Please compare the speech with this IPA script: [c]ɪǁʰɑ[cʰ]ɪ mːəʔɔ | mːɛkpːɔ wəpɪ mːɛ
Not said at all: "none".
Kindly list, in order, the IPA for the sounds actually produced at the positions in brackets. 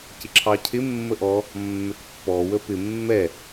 c, cʰ

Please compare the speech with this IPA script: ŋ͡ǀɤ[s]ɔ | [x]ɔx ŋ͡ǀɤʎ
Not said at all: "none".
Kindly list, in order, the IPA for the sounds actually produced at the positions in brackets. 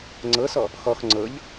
s, x

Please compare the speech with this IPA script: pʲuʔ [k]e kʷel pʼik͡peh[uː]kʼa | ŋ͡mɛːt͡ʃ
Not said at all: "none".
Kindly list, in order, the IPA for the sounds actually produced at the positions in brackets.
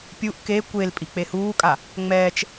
k, uː

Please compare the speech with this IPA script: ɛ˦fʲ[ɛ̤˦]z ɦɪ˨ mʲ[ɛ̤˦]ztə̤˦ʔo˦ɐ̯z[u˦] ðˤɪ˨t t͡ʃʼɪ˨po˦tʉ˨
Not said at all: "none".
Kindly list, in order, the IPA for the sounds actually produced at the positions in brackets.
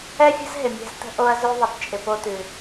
ə̤˦, ɛ̤˦, ʉ˦

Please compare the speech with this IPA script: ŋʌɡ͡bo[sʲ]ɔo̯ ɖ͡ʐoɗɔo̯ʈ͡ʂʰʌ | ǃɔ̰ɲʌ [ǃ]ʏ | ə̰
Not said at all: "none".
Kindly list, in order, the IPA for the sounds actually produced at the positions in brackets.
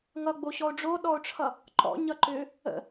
ɕ, ǃ

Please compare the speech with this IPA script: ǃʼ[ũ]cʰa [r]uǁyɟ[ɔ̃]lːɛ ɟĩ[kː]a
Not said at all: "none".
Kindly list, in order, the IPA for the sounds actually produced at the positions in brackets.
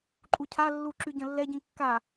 u, lː, ə̃, kː

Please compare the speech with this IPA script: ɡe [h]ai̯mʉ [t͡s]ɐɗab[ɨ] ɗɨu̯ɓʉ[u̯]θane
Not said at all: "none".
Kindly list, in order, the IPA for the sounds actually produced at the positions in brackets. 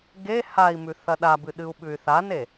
h, θ, ɨ, y̯

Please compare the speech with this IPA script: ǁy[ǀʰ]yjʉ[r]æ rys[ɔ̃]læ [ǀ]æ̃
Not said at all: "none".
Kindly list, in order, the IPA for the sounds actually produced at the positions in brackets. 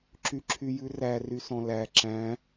ǁʰ, r, ɔ̃, ǁ

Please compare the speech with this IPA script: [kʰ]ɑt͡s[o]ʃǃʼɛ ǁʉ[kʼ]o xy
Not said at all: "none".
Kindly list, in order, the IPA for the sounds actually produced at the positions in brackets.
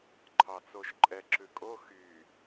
ǃʰ, o, kʼ

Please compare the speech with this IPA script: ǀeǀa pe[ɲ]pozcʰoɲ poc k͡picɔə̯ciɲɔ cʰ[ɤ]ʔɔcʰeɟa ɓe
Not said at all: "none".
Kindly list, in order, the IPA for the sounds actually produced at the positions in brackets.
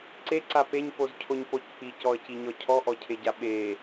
ɲ, ɔ

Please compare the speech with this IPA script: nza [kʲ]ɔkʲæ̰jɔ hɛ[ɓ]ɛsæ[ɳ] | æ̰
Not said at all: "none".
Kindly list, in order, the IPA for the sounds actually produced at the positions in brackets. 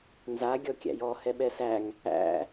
ɡʲ, ɓ, ŋ

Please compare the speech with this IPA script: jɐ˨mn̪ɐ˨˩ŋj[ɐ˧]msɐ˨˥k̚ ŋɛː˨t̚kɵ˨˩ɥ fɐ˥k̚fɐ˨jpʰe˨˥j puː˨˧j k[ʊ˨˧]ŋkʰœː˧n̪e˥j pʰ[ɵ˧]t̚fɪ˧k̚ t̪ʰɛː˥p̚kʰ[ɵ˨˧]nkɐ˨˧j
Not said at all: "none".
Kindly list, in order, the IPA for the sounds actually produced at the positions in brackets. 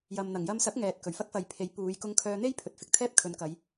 ɐ˧, ʊ˧, ɵ˨, ɵ˨˧

